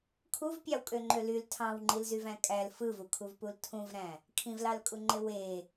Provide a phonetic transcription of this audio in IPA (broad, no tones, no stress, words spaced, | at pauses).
kʰuvpʲɑwkʼøŋ͡ǃø lyl tʰɑ̃wŋ͡ǃilzyvæ̃ kʼæl fɯvukʰuvpul tʰũvɾæ̃ | kʰĩvlɑlkʼuŋ͡ǃe we